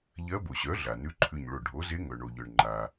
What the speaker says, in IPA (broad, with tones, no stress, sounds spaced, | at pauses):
ʎ ɜ˧˥ b o˩ ɕ œ˩˥ ɮ a˩ n ʉ˧˥ ǃʰ ʉ˧˩ ɲ ɭ o˧˩ ɖʱ o˩˥ z e˧˥ ŋ œ˩ ɳ o˩ ʎ œ˩ ɳ ŋ͡ǃ a˩